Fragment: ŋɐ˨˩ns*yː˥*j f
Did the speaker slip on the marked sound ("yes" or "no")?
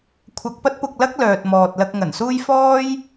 yes